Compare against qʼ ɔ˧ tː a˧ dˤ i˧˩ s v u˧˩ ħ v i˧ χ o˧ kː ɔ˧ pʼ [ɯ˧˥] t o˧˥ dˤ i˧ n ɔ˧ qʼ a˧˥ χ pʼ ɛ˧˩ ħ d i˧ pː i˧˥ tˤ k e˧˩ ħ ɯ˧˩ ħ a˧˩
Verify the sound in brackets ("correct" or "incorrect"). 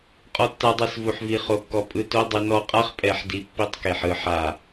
incorrect